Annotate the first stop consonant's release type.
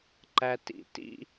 click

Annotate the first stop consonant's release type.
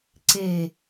click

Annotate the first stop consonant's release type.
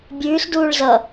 plain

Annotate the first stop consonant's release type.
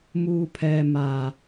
aspirated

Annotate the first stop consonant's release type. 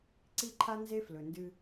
click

